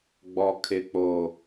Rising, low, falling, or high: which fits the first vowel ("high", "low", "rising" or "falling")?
low